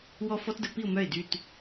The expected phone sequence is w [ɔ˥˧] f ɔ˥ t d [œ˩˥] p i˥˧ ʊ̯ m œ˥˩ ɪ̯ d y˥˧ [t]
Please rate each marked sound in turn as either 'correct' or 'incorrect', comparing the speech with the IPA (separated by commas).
correct, incorrect, correct